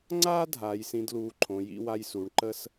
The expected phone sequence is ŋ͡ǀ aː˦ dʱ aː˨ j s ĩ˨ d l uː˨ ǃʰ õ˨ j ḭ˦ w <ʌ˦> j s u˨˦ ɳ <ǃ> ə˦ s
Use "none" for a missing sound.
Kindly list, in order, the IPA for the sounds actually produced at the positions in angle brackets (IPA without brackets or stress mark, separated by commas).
a˦, ǃ